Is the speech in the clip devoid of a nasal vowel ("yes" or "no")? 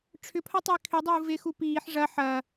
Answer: yes